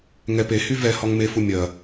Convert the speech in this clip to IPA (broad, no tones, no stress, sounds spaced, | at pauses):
ŋ ɛ p e h y v ɛ h ɔ ŋ m e f u mʲ ɐ